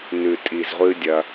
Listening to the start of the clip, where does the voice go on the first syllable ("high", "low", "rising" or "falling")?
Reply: low